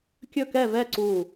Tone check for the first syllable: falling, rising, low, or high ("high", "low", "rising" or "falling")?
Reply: falling